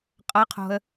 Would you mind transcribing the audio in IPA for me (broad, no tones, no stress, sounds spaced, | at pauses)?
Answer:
qʼ ʌ qʰ o̤ ə̯